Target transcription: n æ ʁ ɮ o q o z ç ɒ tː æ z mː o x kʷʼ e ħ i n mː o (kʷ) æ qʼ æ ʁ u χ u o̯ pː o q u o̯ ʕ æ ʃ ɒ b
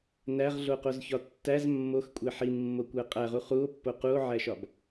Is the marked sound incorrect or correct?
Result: correct